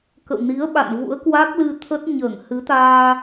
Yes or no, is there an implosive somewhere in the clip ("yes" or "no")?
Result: yes